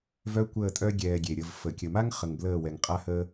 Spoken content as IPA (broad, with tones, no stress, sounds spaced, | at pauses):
v œ˦ kʷ əː˦˨ tʼ œ˦ ɡʲ ɛː˧ ɡʲ e˨ ɾʲ ə˧ v f ə˨ kʲ ə˨ m a˦ ŋ χ ə˨ ŋ b l əː˦˨ w ɛ˨ ŋ qʼ a˦ h əː˦